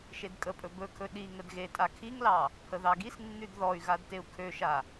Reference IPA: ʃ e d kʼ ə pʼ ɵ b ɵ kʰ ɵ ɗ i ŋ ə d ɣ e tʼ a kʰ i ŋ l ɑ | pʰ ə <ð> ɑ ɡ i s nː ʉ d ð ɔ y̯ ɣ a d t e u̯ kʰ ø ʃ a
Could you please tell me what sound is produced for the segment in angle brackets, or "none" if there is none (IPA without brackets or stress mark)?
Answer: ð